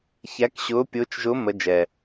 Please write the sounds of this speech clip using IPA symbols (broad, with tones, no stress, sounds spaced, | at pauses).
ç æ˧˥ k ɕ ʊː˧˥ pʲ ʊː˧˥ t͡ʃ ʒ ʊ˧˥ m ə˧˥ d͡ʒ ɛ˨˩